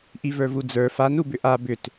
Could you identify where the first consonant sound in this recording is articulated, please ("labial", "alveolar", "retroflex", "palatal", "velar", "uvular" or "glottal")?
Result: glottal